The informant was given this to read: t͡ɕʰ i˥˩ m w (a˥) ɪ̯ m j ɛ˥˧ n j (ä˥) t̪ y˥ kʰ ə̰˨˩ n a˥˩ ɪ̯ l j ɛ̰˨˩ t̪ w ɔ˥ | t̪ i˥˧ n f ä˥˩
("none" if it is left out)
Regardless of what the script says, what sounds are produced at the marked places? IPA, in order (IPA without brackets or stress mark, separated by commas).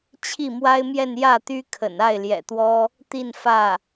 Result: a˥, ä˥˩